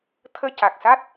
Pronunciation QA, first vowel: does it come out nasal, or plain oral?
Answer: oral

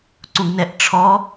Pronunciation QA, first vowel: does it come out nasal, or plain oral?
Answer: nasal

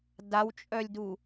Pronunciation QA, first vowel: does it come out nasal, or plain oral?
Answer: oral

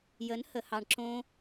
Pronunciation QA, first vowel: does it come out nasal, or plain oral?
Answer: oral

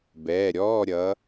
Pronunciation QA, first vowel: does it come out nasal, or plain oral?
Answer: oral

